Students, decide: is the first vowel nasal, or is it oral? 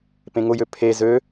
nasal